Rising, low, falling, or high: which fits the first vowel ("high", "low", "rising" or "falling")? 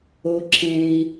low